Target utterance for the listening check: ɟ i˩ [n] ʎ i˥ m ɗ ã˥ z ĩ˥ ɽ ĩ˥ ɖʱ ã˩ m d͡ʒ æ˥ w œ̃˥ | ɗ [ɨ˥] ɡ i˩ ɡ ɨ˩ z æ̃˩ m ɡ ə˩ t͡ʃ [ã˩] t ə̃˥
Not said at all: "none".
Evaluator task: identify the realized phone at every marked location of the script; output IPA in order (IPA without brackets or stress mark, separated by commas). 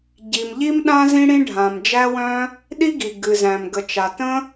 m, i˥, a˩